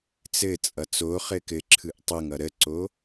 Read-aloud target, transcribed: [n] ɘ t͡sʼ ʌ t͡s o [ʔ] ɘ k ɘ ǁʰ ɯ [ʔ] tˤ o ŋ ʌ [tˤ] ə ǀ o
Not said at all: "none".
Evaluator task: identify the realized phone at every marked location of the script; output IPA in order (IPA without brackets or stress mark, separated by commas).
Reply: t͡s, χ, ʔ, ɾ